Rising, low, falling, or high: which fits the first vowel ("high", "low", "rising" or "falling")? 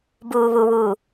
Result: low